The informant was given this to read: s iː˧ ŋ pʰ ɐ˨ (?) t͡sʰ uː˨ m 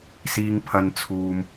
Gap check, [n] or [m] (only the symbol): n